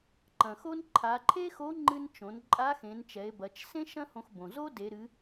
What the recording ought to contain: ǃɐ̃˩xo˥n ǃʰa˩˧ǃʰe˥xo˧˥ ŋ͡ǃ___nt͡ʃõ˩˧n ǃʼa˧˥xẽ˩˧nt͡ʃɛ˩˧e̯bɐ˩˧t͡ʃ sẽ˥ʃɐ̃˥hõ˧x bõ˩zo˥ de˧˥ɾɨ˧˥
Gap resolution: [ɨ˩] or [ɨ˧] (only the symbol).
ɨ˧